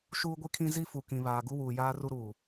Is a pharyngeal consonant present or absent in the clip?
absent